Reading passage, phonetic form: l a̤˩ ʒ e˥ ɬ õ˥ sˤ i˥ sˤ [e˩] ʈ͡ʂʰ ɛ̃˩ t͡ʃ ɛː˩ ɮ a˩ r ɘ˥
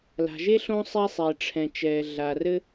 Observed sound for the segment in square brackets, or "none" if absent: e˩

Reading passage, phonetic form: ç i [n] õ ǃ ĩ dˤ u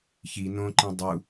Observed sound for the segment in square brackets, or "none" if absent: n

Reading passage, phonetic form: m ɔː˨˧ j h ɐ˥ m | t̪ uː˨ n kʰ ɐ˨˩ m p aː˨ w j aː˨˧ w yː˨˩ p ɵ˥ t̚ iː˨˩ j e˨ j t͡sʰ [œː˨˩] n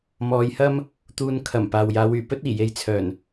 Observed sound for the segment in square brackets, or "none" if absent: œː˨˩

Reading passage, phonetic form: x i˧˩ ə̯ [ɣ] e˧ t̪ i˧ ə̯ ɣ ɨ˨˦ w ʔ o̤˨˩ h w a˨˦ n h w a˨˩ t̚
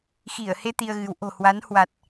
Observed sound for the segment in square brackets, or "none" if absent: h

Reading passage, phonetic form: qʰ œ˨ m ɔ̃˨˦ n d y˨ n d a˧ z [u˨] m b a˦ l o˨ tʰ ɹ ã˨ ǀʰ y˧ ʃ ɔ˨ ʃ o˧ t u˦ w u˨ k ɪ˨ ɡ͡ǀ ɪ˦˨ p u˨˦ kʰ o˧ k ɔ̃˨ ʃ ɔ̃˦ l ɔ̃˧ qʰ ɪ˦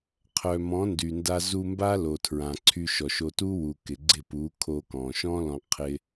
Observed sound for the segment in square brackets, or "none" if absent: u˧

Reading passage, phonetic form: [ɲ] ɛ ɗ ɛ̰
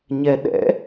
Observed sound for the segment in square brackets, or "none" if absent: ɲ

